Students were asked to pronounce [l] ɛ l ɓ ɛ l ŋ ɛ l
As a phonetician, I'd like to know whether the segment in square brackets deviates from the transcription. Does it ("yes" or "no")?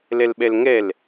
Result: no